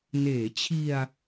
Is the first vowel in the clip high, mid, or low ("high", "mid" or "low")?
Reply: mid